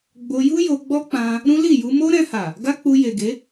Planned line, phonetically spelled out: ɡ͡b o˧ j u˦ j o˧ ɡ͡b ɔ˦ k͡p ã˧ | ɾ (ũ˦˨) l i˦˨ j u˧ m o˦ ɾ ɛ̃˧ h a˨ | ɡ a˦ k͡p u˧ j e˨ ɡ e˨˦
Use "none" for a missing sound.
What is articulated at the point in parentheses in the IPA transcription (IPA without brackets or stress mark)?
ũ˦